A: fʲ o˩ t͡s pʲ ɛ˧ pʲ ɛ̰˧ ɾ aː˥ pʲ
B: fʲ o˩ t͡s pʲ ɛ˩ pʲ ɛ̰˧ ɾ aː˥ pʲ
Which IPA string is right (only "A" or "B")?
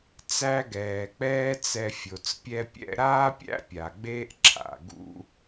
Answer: A